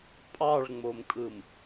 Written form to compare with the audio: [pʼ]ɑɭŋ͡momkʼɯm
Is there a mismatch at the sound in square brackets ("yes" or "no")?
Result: no